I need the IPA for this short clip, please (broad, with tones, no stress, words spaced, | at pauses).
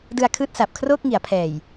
dɯ˧a̯kʰɯː˦˥t̚ sa˨˩p̚kʰroː˥˩k̚ŋi˩˦a̯pʰɛː˨˩j